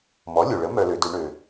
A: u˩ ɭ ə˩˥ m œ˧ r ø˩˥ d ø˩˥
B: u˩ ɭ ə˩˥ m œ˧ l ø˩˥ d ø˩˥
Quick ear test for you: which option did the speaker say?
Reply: B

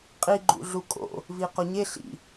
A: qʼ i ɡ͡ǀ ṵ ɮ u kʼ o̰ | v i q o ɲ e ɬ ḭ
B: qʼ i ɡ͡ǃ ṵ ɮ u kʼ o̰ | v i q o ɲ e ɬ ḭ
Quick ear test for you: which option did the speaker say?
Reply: B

